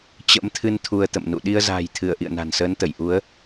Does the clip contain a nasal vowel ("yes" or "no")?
no